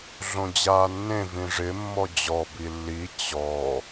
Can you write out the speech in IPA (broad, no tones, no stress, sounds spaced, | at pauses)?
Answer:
ɮ õ d͡ʑ aː nː ẽ v ĩ ʐ ɪ mː ɔ d͡ʑ ɔ b i lː i t͡ɕ ɔ